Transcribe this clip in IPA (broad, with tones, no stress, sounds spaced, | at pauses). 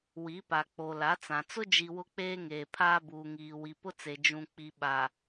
w i˨˦ p a˨ k͡p o˨ l a˨˦ t͡s ã˨ t͡s ʊ˦ d͡ʒ i˨ w ʊ˦ k͡p eː˦ ŋ eː˨ pʰ aː˦ b uː˨ ŋ iː˨ w i˨ p ʊ˦ t͡s e˨ d͡ʒ ũ˨ k͡p i˨ ɓ a˨